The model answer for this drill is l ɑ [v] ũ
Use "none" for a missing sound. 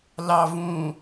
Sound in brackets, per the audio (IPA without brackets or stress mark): v